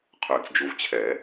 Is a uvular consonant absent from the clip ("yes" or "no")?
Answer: no